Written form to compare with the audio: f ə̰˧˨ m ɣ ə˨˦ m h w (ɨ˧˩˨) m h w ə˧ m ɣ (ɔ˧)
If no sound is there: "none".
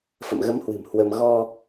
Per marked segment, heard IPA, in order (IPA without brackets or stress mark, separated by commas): ɨ̤˨˩, ɔ˧